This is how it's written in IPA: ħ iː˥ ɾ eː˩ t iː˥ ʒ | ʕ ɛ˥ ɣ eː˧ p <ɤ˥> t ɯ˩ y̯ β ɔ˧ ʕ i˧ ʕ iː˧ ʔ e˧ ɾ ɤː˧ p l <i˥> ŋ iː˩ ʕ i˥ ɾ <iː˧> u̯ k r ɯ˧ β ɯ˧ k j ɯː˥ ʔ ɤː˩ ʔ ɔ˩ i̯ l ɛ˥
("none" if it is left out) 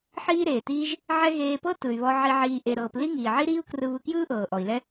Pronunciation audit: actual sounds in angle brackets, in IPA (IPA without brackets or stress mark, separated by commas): ɤ˥, i˥, iː˥